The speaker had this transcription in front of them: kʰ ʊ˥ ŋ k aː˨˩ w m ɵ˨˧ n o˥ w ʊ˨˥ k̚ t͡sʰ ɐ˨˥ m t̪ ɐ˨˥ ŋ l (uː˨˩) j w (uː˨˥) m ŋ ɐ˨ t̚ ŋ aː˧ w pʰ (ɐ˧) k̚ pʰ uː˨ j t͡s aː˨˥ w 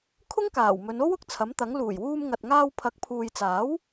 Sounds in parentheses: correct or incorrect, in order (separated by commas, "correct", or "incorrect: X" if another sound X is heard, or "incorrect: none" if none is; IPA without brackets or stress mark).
correct, incorrect: uː˧, incorrect: ɐ˨˥